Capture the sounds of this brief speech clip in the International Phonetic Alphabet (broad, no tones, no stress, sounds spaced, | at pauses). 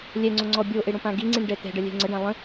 lʲ ɛ ŋ͡ǀ o ŋ͡ǀ ɔ bʲ o ʔ e ɽ õ p ã ɡ i ŋ͡ǀ ĩ ɳ ɖ ɛ t̪ ɛ̤ ɖ ə lʲ ɛ̤ ŋ͡ǀ ə ɖ ã lˠ ə̃